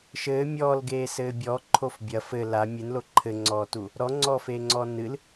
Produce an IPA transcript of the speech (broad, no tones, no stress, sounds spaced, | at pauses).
ʃ ɘː mʲ ɔː l ɡ eː s ɘː bʲ ɔ ǃʰ o f bʲ ɐ f ɘ l a mʲ ɨ n l o ǃʰ ɘ ŋ͡ǀ ɔː t u | ɾ ɔ ŋ͡ǀ ɔː f eː ŋ͡ǀ ɔː n ɨ l